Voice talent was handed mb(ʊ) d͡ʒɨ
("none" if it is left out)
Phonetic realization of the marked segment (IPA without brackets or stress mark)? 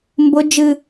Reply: ʊ